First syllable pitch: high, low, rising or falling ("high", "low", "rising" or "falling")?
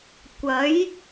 rising